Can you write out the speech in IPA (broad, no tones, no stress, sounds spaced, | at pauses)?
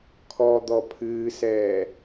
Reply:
kʰ ɔ d̪ ɔ pʰ ɨː s ɛː